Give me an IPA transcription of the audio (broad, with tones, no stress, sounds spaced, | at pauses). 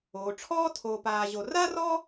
oː˩ ʈ͡ʂʰ ɔː˦ tʰ oː˨ p aː˨ ʑ o˨ r a˥ r ɔ˥